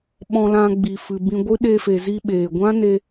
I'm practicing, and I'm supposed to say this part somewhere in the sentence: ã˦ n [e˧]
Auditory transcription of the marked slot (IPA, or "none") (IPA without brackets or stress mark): e˧